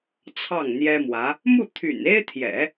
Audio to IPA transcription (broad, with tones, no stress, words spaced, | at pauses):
t͡sʰɑ˥˩ŋn̪jɛ˥mwä˧˥ | mu˥˩ t̪ʰy̰˨˩ne˥ɪ̯t̪ʰjɛ̰˨˩˦